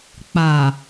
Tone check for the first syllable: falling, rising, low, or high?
low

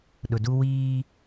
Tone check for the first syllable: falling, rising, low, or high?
low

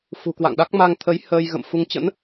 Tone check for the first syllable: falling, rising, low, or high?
low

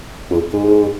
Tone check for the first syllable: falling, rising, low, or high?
low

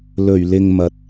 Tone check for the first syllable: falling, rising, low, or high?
low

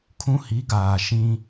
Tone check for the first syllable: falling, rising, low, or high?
high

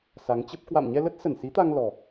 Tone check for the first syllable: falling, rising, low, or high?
rising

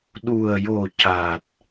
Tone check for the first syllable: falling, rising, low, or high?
low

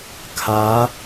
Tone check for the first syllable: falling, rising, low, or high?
rising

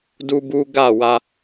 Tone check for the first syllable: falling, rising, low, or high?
high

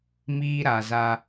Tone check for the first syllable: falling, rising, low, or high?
high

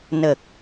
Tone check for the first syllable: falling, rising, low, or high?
low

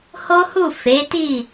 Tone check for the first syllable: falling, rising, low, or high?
high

